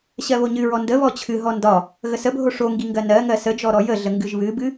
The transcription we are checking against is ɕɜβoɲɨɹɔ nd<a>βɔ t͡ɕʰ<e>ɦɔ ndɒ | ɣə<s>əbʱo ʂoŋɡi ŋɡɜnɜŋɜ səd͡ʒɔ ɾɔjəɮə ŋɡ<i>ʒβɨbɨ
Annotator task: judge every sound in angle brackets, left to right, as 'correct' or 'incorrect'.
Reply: incorrect: ə, incorrect: ɨ, correct, incorrect: ɨ

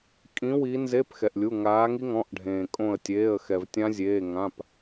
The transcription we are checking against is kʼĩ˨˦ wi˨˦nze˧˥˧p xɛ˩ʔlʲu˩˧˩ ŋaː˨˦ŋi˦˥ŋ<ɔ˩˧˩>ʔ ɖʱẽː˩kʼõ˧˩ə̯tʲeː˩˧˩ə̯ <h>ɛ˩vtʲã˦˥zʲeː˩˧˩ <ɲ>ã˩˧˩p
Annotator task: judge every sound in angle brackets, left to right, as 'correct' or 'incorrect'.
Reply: incorrect: ɔ̃˩˧˩, incorrect: x, incorrect: ŋ

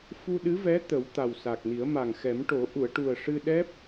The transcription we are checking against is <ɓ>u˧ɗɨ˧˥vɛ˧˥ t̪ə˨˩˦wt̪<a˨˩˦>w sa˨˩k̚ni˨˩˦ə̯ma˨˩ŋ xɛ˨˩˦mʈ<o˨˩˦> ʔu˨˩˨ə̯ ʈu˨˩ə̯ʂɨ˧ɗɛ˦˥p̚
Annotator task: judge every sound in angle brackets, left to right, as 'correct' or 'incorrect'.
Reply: incorrect: f, incorrect: a˨˩, correct

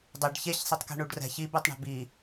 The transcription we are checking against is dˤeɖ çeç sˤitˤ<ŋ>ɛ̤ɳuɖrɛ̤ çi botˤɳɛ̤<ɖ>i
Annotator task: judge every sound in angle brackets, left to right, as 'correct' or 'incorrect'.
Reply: incorrect: k, incorrect: b

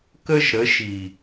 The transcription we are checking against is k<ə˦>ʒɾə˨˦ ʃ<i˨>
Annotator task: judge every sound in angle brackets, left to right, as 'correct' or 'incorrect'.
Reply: correct, correct

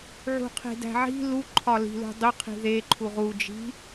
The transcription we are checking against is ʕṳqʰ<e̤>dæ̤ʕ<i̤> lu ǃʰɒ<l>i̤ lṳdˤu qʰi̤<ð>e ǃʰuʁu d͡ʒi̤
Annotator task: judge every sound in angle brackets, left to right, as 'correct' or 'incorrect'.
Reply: correct, correct, correct, correct

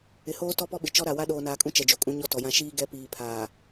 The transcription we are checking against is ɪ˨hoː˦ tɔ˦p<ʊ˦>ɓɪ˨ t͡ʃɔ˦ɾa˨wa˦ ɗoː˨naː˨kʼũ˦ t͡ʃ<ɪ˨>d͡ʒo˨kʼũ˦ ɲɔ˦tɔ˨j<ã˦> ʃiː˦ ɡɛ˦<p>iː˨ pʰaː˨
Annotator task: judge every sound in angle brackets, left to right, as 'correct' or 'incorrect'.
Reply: incorrect: ɔ˦, incorrect: ɛ˨, correct, correct

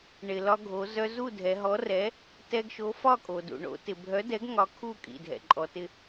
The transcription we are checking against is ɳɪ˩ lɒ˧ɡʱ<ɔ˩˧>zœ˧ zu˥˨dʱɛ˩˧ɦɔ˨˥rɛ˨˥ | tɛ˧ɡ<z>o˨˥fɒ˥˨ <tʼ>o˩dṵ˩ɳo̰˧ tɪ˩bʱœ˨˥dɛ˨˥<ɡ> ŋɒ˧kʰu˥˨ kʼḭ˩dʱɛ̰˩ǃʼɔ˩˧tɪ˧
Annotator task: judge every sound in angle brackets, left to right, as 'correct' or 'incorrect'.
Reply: incorrect: o˩˧, incorrect: ʃ, incorrect: kʼ, correct

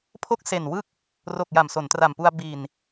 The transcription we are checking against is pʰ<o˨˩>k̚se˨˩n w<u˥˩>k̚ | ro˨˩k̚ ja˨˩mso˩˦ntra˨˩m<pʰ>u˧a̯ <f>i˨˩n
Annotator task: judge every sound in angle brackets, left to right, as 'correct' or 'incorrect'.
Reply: incorrect: o˦˥, incorrect: ɯ˥˩, incorrect: p, incorrect: b

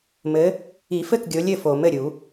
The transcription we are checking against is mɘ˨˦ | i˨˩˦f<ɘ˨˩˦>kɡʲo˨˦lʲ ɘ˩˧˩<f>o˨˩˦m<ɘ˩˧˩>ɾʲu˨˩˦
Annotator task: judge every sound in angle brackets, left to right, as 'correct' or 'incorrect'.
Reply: incorrect: ɘ˥˩, correct, correct

